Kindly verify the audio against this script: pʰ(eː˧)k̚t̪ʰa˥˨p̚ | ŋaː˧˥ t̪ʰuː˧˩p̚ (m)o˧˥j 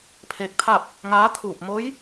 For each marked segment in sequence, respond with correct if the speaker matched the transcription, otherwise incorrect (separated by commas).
correct, correct